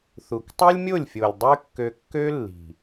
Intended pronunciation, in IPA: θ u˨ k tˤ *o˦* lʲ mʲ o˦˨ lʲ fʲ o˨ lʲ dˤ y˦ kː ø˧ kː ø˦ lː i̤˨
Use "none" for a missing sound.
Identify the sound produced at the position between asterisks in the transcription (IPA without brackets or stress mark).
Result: o˦